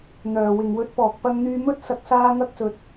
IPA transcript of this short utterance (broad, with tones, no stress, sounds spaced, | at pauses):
n̪ œː˨ w ɪ˨ ŋ w ɵ˧ t̚ p ɔː˨ k̚ p ɐ˧ ŋ n̪ yː˧ m ɵ˥ t̚ s ɐ˧ k̚ s aː˥ ŋ ɐ˥ k̚ s ɵ˧ t̚